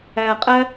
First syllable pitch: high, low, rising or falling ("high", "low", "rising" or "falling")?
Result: low